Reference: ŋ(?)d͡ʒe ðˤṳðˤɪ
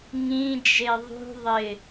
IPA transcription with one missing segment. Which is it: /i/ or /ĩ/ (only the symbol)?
ĩ